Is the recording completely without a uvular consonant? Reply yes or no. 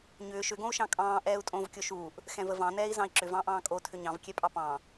yes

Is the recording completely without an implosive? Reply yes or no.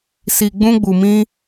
yes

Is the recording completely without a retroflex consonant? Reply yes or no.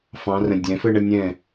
no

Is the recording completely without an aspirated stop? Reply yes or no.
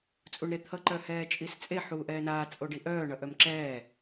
no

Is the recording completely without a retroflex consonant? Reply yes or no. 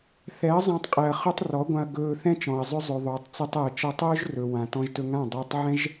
yes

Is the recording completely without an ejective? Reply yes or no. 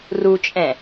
no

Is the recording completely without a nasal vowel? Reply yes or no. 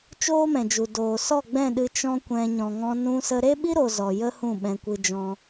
no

